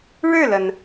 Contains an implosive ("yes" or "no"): no